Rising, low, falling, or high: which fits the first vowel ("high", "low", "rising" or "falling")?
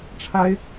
high